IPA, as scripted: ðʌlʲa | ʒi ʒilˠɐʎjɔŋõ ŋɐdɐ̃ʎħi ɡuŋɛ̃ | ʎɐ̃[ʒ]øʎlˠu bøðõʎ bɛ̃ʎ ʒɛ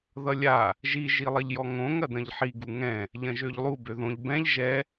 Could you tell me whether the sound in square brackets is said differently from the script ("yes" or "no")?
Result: no